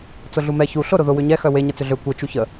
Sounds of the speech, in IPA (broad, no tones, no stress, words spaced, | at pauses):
t͡sʊɮumɛ çu ɬʊ ɾʊðʊ wʏɲɛ xœwe ɲət͡sʏɮø kʷe t͡ʃuçə